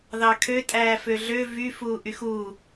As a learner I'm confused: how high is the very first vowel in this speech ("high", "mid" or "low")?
low